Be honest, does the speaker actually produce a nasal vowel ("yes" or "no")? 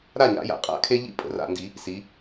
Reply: no